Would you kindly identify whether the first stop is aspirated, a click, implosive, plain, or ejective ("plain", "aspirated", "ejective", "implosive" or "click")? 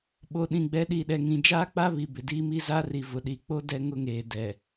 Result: implosive